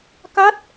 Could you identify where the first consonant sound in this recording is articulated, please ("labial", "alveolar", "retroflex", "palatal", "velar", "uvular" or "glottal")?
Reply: velar